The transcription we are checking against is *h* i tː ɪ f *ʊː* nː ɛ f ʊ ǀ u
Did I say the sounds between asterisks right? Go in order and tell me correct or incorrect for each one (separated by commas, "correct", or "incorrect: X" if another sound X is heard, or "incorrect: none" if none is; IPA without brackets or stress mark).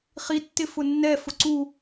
incorrect: χ, incorrect: ʊ